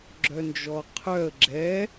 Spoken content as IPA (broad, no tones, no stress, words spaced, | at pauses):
ɡ͡ǁœnd͡ʒɔqʰœə̯ ɡ͡ǁɛ